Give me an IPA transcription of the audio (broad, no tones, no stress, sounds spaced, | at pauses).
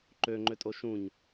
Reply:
ǃ ø ŋ͡ǃ ø tʼ o ʃ ũ ɲ